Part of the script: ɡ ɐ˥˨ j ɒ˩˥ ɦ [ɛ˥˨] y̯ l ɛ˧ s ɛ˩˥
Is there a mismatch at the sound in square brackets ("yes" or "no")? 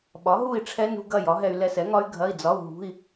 yes